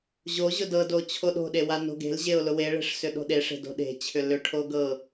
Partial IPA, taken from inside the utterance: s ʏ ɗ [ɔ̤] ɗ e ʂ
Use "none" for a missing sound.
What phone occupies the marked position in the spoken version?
o̤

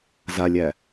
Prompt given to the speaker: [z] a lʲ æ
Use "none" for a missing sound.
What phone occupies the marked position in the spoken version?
z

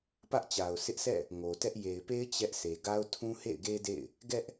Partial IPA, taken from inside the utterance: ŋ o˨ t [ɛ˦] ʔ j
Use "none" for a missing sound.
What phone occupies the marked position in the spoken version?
ɛ˦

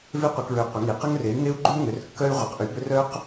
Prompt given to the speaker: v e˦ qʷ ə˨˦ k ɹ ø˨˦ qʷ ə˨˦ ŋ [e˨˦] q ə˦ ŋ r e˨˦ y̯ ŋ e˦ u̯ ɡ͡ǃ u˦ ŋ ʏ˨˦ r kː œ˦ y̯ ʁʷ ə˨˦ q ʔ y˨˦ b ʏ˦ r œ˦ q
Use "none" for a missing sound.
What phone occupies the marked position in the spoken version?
i˨˦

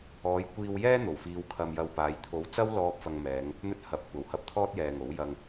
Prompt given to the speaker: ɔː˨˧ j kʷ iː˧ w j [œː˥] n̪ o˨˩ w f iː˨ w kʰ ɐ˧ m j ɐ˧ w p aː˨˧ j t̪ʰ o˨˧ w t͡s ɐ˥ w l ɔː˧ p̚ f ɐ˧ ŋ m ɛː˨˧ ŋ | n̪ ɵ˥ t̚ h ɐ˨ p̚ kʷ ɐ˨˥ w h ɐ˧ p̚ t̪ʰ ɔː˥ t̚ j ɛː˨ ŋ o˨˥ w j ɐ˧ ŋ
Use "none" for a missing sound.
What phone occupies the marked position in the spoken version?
ɛː˥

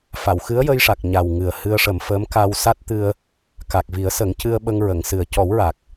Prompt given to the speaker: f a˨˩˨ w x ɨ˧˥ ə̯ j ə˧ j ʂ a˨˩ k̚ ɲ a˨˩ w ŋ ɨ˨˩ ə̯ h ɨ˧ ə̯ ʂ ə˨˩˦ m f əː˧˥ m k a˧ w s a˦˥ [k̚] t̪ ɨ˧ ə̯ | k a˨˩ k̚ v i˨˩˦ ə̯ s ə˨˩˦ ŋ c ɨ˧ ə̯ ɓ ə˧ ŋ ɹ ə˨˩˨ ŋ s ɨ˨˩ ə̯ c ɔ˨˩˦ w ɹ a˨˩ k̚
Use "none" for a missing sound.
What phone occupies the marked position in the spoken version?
t̚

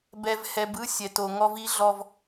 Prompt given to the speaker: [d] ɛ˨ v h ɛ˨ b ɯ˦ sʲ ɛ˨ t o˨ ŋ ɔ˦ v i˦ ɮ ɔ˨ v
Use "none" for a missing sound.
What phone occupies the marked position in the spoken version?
b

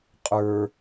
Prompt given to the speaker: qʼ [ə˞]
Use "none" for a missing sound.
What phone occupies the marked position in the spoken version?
ə˞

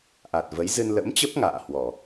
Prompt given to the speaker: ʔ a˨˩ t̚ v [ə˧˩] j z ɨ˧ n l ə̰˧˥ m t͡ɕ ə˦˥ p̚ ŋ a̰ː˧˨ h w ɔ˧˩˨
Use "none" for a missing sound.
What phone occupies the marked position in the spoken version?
ə˨˦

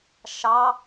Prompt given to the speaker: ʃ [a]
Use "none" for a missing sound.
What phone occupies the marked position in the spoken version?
ɑ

